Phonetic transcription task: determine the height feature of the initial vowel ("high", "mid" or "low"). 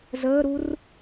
mid